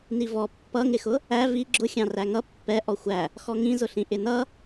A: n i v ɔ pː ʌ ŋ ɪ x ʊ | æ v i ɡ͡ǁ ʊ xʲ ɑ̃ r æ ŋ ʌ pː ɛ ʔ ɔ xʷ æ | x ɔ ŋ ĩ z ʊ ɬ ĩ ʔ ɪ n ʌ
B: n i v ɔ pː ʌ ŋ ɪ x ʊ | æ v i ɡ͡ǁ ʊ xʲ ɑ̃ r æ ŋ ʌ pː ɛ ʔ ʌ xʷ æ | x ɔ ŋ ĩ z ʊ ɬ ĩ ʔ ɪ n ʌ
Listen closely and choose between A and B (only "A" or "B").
A